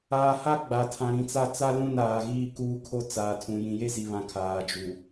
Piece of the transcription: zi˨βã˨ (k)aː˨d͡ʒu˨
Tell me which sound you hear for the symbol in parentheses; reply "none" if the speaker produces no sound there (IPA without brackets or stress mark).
kʰ